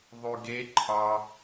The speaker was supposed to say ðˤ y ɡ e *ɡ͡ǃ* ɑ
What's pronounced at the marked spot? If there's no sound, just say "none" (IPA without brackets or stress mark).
ǃʰ